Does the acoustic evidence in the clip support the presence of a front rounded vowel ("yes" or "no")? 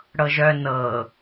yes